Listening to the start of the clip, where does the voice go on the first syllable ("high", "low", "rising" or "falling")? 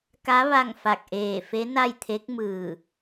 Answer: rising